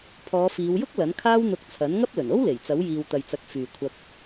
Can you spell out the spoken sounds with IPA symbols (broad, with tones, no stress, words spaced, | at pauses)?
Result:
pʰɔː˨˧fiː˨˧wjʊ˥k̚ lɐ˨˥nkʰaː˥w n̪ʊ˧k̚ t͡sʰɐ˨˥nŋɐ˥p̚lɵ˨˩n o˥wle˨˩j t͡sɐ˨˥wjiː˨wt̪ɐ˨jt͡sɐ˨˥k̚ fyː˨kʷʰɐ˧k̚